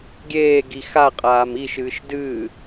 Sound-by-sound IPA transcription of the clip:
ɡʲ eː ɡ i x a qʼ aː m i ʃ ɨː ʃ d ɨː

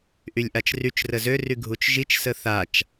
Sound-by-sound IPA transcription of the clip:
ʔ y lʲ ʔ a t͡ʃ r y t͡ʃ r ə z ø r y ɡʱ u t͡ʃ ʒ i t͡ʃ s ə θ a t͡ʃ

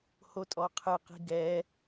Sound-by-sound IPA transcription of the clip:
h o tʼ ɔ qʰ ɨ q i̤ ɡ ɛ

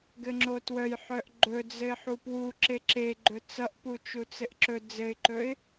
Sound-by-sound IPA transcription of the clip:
ɡ ɘ ŋ͡ǁ o t w œ j ħ œ ʔ ɡ͡ǃ ɵ d͡z ɘ ɪ̯ ħ u p w u ǁ e ǁ e ɡ͡ǃ ɵ t͡s ʌ ʔ p u t͡ʃ u t͡s ɘ ʔ ǁ ɵ d͡z ɘ ɪ̯ ǃ ɵ ɪ̯

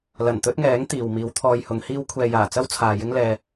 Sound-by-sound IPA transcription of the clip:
l ɐ˨˩ n t̪ ɵ˥ t̚ ŋ ɛː˨˥ ŋ t̪ iː˨ w m iː˨˧ w t̪ʰ ɔː˧ j h ʊ˨˧ ŋ h iː˥ w kʷʰ ɛː˨ j aː˨˩ t͡s ɐ˥ w t͡sʰ aː˨ j ɪ˥ ŋ l ɛː˧

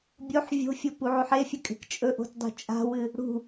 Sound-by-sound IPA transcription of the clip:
bʲ o ħ vʲ o̤ fʲ o p u ʕ ʉ ħ e fʲ ɵ kʼ e̤ k t͡ʃʼ ɵ ʔ o̤ t dˤ ṳ t͡ʃʼ a̤ w ɨ | ɽ ṳ

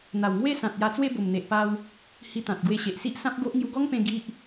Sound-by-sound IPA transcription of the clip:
n̪ a˨˩ w ŋ w e˥˧ s ã˨ t̚ j a˧ t͡s w e˥˧ b o˨˩ m n̪ e˨ ʔ p a˧ w | h i˧ t̪ ã˨ t̚ ɡ w e˧ ɕ e˨ ʔ s i˦ ʔ s ã˦ p̚ ɡ o˦ ʔ ŋ j u˧ ɡ ɔ˦ ŋ p ẽ˧ ɡ i˦ ʔ

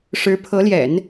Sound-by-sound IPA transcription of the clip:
ʂ ɻ̩˧˥ pʰ ɤ˧˥ l j ɛ̰˨˩˦ n

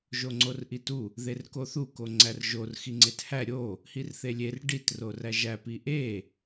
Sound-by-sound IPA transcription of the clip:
ʒ o ŋ͡ǀ o r ʔ i t u | ð e r k o θ u k o ŋ͡ǀ æ r ʒ o r x i ŋ͡ǀ e t h æ ɾʲ o | h i r θ e lʲ e r ɖ i t r o r æ ʒ æ p i ʔ e

